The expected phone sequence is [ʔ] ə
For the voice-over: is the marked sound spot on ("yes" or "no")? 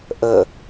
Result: yes